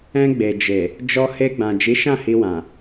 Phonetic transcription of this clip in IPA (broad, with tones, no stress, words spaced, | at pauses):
ɛ̃˧ɡ͡be˨d͡ʒe˨ | d͡ʒɔ˧he˧ɡ͡bã˨ d͡ʒi˨˦ʃã˦˨hi˧wã˨